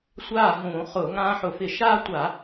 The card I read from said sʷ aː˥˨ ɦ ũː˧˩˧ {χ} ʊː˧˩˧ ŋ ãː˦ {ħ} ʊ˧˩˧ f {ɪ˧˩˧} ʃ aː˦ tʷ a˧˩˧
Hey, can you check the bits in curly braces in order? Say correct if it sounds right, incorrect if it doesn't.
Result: correct, correct, correct

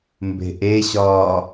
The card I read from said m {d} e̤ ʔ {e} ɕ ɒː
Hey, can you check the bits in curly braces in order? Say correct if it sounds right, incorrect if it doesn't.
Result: incorrect, correct

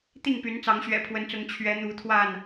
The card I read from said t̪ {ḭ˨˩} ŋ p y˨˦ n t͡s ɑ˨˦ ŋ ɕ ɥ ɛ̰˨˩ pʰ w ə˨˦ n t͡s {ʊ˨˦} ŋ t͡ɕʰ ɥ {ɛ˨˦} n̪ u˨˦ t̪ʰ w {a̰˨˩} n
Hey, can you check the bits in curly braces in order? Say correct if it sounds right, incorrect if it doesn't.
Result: incorrect, correct, correct, incorrect

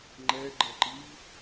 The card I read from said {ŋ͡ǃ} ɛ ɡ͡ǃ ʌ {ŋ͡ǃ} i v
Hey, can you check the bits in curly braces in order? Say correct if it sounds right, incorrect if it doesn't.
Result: correct, incorrect

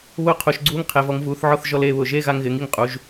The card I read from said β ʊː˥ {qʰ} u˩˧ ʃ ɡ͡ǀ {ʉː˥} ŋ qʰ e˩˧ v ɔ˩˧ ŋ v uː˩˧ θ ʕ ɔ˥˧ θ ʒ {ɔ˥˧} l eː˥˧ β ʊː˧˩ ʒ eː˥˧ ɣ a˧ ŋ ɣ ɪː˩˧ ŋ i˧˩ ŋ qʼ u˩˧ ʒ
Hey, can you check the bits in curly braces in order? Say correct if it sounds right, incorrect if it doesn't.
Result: correct, incorrect, correct

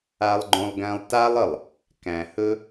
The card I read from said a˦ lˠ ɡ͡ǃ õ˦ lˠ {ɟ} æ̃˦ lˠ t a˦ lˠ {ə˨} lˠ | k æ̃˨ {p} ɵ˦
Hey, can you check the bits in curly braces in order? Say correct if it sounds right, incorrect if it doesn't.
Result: incorrect, correct, incorrect

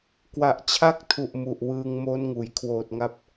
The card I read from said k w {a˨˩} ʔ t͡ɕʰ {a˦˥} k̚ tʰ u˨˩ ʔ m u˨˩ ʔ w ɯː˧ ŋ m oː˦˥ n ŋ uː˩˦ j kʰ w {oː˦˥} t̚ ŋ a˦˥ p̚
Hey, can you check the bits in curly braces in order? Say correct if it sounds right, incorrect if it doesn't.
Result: correct, correct, incorrect

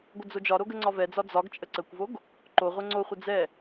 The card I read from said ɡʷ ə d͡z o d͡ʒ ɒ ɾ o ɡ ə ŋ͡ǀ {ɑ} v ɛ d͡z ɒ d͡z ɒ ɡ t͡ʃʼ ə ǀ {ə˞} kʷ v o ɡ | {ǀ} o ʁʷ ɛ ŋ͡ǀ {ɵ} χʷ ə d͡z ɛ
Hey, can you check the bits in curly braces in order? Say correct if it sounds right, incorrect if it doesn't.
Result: incorrect, incorrect, incorrect, incorrect

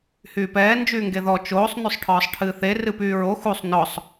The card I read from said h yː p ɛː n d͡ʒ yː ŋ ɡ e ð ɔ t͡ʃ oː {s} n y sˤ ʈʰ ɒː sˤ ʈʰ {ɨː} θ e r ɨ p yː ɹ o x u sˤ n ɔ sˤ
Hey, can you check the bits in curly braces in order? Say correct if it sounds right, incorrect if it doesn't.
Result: incorrect, correct

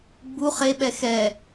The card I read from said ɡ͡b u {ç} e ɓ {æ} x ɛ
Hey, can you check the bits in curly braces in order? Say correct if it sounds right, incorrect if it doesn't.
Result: incorrect, incorrect

